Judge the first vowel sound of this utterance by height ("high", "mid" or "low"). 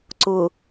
high